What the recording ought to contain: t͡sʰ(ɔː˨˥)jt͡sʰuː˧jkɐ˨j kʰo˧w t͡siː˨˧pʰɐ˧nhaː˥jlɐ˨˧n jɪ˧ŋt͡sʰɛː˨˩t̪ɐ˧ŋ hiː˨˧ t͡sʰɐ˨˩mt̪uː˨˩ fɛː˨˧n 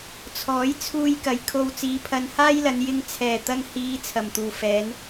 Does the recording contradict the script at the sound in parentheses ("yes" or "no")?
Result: no